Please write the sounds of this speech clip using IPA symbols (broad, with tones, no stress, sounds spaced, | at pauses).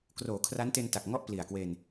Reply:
k r oː˩˦ kʰ r a˦˥ n t e˧ n t a˨˩ k̚ ŋ ɔ˥˩ ʔ p l i˨˩ a̯ k w e˧ n